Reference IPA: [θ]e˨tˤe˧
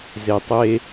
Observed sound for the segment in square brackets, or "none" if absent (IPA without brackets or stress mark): z